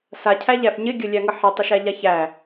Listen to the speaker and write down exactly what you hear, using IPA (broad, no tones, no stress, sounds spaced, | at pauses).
s a cʰ æ ʎ æ f ɲ ɪ ɡʲ ə lʲ æ ŋ ə ħ ɪ tˤ ə ʃ æ ʎ a ç æ